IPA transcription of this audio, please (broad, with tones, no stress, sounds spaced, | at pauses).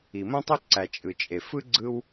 i˩ m õ˥ tˤ ø˥ ǀ æ˩ t͡ʃʼ ɯ˩ t͡ʃʼ e˩ f ɯ˥ ɡ͡ǀ ɯ˥ w